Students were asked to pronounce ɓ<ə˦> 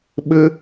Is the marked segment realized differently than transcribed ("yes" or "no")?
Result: no